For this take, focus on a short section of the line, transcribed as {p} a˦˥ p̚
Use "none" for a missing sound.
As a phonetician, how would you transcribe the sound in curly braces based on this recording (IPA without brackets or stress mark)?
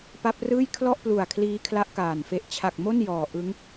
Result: p